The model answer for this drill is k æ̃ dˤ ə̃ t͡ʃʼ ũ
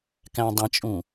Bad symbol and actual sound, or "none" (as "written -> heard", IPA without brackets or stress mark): none